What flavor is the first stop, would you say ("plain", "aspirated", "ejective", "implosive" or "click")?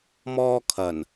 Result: aspirated